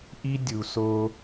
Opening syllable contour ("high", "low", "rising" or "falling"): high